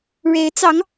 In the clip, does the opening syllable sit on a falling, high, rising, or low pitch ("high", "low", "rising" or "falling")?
rising